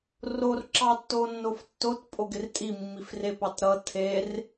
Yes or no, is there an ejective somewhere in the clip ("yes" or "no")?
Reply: yes